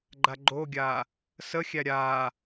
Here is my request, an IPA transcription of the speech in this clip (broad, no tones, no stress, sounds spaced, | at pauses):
ɡ͡ǃ a ɡ͡ǃ o ɡʲ a | s ə xʲ æ ɾʲ a